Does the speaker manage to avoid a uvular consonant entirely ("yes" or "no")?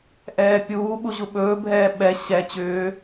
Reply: yes